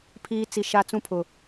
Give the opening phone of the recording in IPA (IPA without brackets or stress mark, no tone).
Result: pʰ